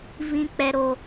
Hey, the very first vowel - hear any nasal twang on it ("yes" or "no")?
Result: yes